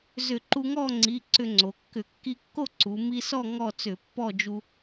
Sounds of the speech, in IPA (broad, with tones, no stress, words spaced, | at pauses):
zʏ˧˩˧ǃu˧ŋɔ˥˨ŋ͡ǀi˩˧˩ ǀʏ˧ŋ͡ǀo˩˧kːʏ˧˩˧ kːi˧kːo˥˨ ǀu˩˧ mi˧sɔ˥˨ ŋɔ˥˨t͡sʏ˧˩˧ pːɔ˥˨d͡ʒu˧